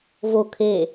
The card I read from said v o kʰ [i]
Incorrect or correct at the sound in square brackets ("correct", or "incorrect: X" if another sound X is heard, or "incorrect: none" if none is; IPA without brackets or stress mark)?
incorrect: e